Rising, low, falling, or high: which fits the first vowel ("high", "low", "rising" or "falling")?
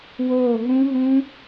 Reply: falling